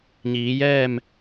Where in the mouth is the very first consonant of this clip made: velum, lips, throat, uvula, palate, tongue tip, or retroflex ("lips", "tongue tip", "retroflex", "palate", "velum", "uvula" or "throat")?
palate